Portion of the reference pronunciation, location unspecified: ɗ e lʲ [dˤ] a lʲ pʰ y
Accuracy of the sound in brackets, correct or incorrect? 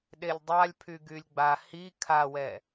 correct